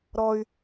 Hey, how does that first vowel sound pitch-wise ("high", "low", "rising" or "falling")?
high